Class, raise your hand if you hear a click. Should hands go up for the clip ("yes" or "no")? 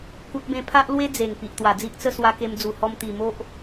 no